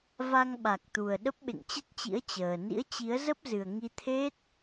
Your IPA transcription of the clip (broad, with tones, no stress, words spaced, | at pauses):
va˧ŋɓa˨˩k̚t̪u˨˩ə̯ ɗə˦˥p̚ɓḛ˧˨ŋt͡ɕə˦˥t̚t͡ɕḭ˧˥ə̯ t͡ɕəː˨˩ nḭ˧˥ə̯t͡ɕi˨˦ə̯zə˦˥p̚zɨ˨˩ə̯ ŋi˧t̪ʰe˦˥t̚